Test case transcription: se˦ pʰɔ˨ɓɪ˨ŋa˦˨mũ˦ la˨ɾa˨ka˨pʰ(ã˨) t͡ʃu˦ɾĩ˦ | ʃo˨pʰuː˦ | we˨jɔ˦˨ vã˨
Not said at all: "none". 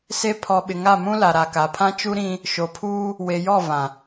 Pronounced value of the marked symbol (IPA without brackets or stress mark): ã˦